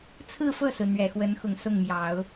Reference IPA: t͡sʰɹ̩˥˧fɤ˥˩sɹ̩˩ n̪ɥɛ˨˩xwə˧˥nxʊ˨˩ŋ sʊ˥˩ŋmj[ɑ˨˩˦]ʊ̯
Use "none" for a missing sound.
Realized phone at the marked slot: ɑ˨˩˦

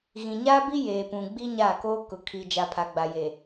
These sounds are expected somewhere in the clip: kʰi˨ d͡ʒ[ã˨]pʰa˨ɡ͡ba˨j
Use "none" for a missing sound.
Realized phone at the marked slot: a˨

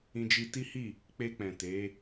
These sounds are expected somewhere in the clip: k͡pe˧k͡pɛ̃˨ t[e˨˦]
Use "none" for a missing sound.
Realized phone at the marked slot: e˨˦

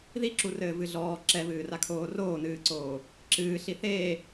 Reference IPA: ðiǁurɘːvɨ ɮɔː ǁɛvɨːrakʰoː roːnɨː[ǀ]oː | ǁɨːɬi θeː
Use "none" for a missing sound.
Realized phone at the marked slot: ǀ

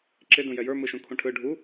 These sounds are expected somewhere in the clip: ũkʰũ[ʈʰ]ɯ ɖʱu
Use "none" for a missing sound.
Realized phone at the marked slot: ʈʰ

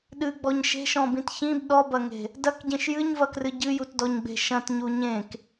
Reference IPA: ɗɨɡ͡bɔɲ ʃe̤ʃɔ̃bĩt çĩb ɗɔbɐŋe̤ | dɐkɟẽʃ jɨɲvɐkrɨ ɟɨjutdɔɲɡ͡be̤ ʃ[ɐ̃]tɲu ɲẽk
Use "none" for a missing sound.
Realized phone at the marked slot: ɐ̃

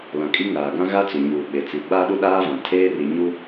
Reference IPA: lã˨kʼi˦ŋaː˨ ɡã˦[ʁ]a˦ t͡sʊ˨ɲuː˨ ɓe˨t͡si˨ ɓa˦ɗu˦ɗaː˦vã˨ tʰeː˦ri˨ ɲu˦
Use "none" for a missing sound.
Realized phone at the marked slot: ɣ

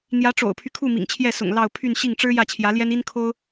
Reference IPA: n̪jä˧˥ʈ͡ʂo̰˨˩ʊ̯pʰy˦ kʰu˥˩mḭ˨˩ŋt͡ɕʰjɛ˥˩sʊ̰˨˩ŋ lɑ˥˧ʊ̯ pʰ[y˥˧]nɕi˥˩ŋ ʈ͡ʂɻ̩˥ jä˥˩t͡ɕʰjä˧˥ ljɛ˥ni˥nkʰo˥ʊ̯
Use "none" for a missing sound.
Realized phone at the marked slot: y˥˧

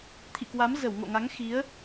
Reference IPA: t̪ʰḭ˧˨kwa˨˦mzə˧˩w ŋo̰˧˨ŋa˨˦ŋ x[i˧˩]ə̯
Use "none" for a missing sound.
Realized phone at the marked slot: i˨˦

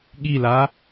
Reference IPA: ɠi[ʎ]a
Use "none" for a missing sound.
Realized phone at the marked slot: l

